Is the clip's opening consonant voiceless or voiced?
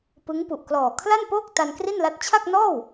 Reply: voiceless